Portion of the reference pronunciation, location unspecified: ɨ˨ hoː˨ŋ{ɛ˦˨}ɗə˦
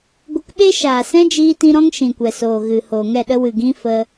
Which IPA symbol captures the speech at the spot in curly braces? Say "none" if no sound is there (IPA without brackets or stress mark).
ɛ˦˨